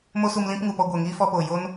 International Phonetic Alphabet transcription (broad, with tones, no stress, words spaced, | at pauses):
mo˦ su˧mlĩ˦pŋu˨pɔ˧ ɡʷɛ˨ŋiː˦fɔ˧po˨ jo˦n